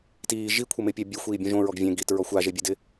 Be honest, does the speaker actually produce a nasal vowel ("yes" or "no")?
yes